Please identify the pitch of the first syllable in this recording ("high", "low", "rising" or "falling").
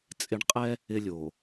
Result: low